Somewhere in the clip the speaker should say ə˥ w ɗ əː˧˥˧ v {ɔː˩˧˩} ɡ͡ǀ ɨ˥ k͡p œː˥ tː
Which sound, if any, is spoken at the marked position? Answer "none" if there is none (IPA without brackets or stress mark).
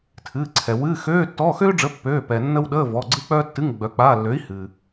ɔː˩˧˩